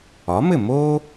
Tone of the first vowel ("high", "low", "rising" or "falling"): rising